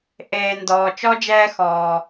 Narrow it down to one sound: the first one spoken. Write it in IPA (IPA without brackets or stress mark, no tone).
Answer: ʔ